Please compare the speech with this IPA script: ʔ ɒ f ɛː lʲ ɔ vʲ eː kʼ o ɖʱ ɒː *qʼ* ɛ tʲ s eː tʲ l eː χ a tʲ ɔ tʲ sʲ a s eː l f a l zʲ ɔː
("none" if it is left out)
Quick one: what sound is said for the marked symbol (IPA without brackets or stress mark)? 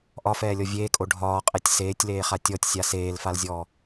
qʼ